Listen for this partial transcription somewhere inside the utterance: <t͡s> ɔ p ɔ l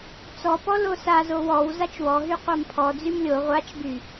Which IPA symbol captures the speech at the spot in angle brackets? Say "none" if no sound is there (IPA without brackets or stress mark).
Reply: t͡s